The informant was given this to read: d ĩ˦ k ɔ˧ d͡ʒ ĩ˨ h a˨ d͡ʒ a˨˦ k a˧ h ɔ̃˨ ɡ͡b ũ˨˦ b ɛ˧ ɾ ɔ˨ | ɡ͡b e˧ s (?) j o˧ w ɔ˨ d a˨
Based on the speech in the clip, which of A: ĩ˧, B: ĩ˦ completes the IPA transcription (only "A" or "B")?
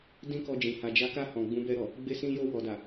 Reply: A